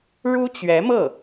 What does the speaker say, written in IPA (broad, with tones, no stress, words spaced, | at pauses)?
ɻu˥t͡ɕɥɛ˧˥mɤ˥˩